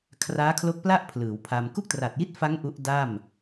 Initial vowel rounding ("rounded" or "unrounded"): unrounded